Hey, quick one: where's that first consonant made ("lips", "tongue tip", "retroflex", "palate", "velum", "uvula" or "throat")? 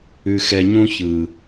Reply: velum